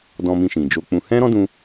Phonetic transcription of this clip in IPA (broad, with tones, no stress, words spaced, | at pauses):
dɔ̃˧ mĩ˧ʃĩ˨d͡ʒo˧k͡pũ˧ hɛ̃˦ɾɔ̃˦dũ˧